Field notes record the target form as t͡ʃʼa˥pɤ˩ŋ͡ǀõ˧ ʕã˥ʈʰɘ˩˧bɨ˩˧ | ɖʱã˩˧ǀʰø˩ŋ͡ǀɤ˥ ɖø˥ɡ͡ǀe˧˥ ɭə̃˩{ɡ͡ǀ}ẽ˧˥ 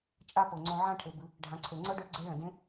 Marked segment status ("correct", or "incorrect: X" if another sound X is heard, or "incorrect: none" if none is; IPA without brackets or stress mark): incorrect: d